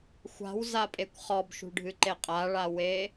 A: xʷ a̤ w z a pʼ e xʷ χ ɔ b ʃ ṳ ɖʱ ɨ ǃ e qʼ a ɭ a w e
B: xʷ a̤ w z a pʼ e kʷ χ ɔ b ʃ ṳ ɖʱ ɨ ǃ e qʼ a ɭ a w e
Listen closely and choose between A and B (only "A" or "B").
B